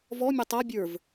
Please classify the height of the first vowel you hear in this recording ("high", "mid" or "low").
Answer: mid